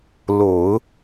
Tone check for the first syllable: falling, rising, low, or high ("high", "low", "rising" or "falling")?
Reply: low